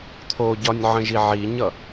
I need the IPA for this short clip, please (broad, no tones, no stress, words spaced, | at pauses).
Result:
t̪ʰoɟɒnʲ ʕə̃ʒiʕiɲʌ